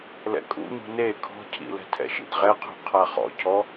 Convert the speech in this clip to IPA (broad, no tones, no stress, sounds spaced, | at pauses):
l ɛ̰ kʼ ṵ ɲ ṳ n e kʰ ɔ̤ cʰ ḭ l ɛ̤ tʰ ɛ̰ ʃ ḭ d ʁ ɛ qʰ ṳ qʰ a χ ɔ̰ cʰ ɔ